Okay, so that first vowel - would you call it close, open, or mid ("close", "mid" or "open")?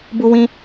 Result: close